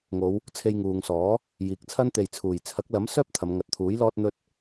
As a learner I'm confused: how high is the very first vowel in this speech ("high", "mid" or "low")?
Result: mid